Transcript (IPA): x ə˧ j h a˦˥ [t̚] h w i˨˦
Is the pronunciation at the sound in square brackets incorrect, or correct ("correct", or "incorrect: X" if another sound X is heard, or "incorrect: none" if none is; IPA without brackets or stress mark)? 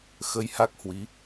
incorrect: k̚